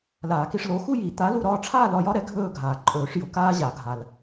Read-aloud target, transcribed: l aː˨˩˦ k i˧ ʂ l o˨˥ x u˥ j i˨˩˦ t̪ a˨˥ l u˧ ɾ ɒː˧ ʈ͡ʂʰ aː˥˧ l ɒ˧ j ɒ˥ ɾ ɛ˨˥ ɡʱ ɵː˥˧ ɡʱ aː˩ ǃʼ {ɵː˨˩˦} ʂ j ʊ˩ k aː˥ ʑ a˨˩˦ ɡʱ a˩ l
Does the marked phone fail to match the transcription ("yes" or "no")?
no